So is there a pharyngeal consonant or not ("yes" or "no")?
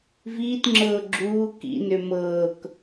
no